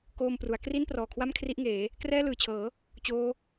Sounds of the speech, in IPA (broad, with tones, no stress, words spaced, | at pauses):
koː˧mpru˩˦a̯ kri˥˩nprɔː˨˩kʰwa˥˩m kʰri˦˥ʔŋeː˩˦ | krɛː˥˩lɯː˨˩t͡ɕʰɤː˩˦ | t͡ɕoː˦˥